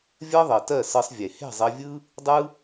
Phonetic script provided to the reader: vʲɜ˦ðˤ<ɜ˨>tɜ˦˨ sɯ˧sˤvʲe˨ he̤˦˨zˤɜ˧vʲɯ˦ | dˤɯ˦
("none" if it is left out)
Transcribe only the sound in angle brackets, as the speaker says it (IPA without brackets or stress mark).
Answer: ɜ˨